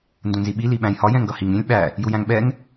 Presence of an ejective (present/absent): absent